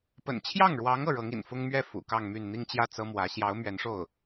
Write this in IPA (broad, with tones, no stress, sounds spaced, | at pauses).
p ə̰˨˩ n t͡ɕʰ j ɑ˥˩ ŋ ɻ w ɑ˧˥ ŋ ɤ˥˩ ɻ ɤ˧˥ ŋ ḭ˨˩ n f ʊ˥ ŋ m ɥ ɛ˥˩ f ṵ˨˩ k ɑ˥˧ ŋ m y˥˧ n n̪ i˥˧ ŋ t͡ɕ j ä˥˩ t͡s ɤ˥ m w ä˧˥ ɕ j ɑ˧˥ ʊ̯ m ɥ ɛ˧˥ n ʂ o˥˩ ʊ̯